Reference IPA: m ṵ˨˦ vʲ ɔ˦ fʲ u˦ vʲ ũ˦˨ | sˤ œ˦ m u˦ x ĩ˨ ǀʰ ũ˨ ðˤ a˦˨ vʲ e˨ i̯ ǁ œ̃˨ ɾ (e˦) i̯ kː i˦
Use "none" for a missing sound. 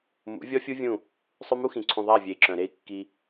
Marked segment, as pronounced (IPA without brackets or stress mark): e˦